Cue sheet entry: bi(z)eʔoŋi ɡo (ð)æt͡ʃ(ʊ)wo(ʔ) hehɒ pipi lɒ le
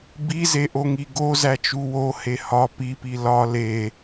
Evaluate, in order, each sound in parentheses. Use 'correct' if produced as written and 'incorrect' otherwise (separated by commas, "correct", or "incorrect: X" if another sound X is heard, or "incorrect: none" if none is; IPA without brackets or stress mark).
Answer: correct, incorrect: z, incorrect: u, incorrect: none